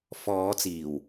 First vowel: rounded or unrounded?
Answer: rounded